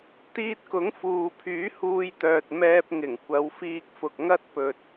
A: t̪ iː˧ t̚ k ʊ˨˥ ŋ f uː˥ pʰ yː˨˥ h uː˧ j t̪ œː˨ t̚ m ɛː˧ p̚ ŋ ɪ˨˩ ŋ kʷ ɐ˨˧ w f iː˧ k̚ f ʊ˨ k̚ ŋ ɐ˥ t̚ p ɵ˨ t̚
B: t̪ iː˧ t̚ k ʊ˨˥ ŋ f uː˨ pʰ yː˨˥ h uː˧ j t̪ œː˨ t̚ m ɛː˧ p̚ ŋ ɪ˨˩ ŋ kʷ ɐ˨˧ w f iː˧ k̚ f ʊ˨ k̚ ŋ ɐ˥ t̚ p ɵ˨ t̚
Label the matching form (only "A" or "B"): B